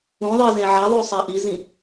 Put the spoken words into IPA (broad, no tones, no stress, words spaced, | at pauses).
ũðˤi zẽʕaðˤʉ sˤaʔizĩ